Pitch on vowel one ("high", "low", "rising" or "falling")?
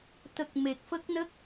low